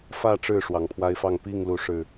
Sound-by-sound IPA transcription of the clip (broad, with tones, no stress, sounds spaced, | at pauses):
f ä˥˨ ʈ͡ʂ ɻ̩˥˨ ʂ w ɑ˨˩ ŋ pʰ w a˦ ɪ̯ f ɑ˥˨ ŋ p i˥˨ ŋ l u˨˦ ʂ ɻ̩˨˩